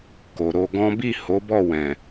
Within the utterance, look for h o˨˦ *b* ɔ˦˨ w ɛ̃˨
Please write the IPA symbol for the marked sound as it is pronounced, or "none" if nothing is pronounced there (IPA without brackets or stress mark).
b